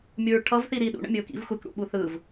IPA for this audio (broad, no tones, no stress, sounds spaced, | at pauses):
mʲ u ɹ ʈʰ ʌ v θ i ɾ i ɗ ṵ ɳ ə̰ mʲ ɯ ʊ̯ k ḭ v xʷ e k ɽ ṵ ɓ u θ ɯ v